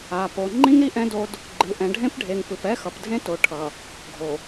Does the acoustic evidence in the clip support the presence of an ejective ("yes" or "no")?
no